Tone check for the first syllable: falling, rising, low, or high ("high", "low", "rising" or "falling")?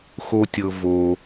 high